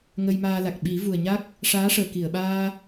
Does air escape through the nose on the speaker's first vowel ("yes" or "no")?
no